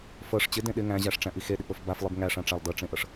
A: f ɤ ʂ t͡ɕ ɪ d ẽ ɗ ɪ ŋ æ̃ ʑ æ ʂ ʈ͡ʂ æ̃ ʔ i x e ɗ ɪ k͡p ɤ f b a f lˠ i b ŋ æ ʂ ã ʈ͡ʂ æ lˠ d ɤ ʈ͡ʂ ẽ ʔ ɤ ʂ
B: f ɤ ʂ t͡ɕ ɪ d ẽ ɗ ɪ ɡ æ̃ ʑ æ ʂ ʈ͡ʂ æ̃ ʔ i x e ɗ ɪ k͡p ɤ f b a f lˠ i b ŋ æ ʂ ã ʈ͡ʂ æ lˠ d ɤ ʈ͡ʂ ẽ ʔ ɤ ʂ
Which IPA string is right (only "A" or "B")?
A